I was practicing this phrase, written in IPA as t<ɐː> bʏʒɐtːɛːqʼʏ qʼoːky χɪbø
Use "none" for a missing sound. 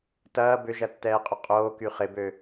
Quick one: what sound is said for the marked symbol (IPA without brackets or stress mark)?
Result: ɐː